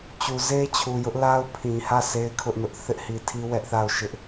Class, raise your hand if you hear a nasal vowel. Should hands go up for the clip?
yes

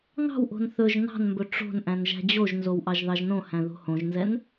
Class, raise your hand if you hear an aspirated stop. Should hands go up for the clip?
no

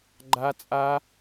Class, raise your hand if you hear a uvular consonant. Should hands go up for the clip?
no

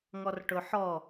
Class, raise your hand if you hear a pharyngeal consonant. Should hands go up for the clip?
yes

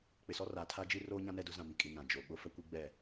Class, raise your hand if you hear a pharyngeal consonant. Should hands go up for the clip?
no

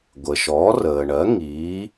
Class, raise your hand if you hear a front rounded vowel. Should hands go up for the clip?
no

